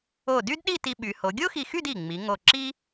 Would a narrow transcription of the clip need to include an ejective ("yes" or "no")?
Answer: no